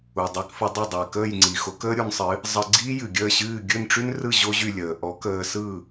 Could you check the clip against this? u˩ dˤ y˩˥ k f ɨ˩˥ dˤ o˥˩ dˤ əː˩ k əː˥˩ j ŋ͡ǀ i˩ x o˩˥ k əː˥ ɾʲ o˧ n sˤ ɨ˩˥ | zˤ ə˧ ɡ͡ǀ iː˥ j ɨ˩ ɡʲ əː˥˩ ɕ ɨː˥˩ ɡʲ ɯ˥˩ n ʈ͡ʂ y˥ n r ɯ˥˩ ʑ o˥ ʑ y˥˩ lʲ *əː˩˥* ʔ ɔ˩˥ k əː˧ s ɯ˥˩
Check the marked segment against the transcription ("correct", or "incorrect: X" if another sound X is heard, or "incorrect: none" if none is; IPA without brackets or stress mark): incorrect: əː˩